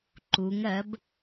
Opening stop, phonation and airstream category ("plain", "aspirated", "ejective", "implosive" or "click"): click